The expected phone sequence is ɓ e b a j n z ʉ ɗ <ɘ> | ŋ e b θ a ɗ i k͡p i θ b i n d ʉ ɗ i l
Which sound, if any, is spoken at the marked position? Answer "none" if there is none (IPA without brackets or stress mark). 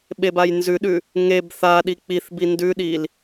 ʉ